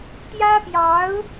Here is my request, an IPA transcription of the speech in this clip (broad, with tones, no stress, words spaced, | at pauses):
t̪jä˥pjɑ˧˥ʊ̯